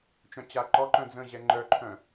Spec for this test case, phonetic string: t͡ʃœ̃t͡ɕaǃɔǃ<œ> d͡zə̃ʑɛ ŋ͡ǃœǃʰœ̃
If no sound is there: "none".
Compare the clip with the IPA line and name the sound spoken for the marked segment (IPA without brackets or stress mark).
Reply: œ̃